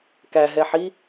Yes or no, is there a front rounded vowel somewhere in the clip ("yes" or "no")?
no